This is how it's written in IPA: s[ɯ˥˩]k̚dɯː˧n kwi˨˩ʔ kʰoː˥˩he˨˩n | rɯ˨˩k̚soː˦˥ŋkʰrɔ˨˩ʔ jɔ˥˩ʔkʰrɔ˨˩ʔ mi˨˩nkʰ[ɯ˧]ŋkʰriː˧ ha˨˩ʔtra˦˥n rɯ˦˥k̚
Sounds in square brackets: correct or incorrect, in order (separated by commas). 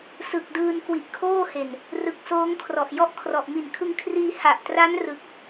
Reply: incorrect, correct